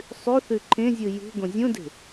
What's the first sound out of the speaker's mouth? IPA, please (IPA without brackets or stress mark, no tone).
sˤ